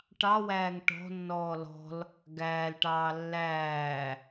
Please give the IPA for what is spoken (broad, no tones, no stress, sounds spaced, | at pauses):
ʈ ɑ w æː ŋ ʈ ɔ̤ nː ɔː l ɔ̤ l | ɡ æː l ʈ ɑː lː æː